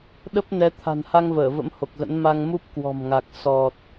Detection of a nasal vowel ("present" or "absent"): absent